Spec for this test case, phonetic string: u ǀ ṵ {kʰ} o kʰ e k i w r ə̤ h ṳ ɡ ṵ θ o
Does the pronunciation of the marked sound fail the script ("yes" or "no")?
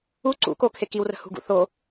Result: yes